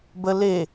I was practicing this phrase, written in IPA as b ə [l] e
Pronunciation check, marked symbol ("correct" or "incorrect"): correct